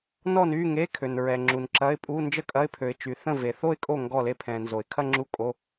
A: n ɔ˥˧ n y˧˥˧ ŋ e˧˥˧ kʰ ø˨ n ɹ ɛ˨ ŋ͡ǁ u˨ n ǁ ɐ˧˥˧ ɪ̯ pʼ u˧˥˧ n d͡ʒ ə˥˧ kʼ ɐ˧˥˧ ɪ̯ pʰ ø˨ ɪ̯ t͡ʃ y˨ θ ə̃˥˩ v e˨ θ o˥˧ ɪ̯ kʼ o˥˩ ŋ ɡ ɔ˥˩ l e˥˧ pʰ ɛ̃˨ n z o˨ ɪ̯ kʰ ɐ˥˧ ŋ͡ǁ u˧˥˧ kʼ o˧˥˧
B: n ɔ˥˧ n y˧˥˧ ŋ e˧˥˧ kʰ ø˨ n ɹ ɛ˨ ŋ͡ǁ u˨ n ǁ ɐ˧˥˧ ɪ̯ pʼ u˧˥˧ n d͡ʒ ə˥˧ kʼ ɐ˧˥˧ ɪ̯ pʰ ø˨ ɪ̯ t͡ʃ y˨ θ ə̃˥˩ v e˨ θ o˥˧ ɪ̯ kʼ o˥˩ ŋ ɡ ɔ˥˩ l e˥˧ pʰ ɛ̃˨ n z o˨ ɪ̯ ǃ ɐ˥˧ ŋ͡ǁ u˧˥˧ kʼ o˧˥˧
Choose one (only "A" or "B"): A